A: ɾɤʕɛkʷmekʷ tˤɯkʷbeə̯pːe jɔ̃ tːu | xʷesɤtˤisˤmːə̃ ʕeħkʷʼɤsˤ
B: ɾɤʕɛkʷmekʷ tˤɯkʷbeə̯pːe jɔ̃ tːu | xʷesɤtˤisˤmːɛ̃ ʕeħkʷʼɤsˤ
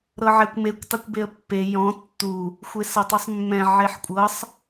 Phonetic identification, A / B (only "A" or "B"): B